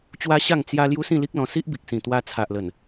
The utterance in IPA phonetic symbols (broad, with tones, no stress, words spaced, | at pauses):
t͡ɕwa˦ɕa˥˧ŋ t͡sja˦ lju˦sĩ˥˧li˦k̚lɔ̃˧ si˦ʔbi˨k̚sĩ˨˩ t̪wa˧t͡sʰa˨ʔlə˨˩n